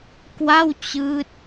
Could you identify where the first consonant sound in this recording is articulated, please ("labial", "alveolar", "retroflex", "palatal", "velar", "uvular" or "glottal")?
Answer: velar